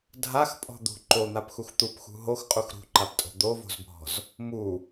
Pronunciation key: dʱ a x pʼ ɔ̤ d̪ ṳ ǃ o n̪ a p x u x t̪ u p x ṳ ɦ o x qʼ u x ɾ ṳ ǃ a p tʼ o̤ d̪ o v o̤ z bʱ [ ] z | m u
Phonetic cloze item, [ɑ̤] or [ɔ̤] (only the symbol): ɔ̤